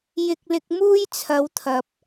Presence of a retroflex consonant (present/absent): absent